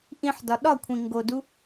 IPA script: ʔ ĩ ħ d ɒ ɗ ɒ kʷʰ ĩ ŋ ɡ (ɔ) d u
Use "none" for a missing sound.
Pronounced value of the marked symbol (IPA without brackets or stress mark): o